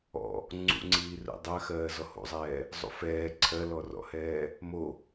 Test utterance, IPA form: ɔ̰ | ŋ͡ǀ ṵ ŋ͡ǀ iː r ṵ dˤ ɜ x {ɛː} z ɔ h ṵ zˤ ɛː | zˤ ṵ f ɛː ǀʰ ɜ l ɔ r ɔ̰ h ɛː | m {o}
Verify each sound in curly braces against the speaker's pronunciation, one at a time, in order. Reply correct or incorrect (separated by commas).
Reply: incorrect, correct